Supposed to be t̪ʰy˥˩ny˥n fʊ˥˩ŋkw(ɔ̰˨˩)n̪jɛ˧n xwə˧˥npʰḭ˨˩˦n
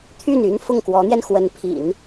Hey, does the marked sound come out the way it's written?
no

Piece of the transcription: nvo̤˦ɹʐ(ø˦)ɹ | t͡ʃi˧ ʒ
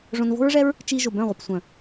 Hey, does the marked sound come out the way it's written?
no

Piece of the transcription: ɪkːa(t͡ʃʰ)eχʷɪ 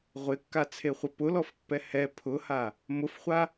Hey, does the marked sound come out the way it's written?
no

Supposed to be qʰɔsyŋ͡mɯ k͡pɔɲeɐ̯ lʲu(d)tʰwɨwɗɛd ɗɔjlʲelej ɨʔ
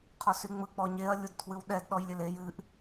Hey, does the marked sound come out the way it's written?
yes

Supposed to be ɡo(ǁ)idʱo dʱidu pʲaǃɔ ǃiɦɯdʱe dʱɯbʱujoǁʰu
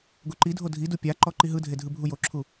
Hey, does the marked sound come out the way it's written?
no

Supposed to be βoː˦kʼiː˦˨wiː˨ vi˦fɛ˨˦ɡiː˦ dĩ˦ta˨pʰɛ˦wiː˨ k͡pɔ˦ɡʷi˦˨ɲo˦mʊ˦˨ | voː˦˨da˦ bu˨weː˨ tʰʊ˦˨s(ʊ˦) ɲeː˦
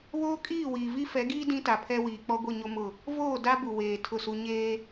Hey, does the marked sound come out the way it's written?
no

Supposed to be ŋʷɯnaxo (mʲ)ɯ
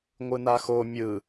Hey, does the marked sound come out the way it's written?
yes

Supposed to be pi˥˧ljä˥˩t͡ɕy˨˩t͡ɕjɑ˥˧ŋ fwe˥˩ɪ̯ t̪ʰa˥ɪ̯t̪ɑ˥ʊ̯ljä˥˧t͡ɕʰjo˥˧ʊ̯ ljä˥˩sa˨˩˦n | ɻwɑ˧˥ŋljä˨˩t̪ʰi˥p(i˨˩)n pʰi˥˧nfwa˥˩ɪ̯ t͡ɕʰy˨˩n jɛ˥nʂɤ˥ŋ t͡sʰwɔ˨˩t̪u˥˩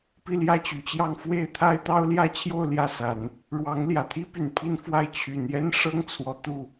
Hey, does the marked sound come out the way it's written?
no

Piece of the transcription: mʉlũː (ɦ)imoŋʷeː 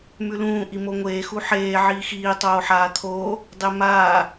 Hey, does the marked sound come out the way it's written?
no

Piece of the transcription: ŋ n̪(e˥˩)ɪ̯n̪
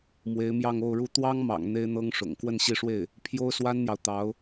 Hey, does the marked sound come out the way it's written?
no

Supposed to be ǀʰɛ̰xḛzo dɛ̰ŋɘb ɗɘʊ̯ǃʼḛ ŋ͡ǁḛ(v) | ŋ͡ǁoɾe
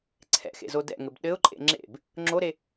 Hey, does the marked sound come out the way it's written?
no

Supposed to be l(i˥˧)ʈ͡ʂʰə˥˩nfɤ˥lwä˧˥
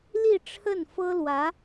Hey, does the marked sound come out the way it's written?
yes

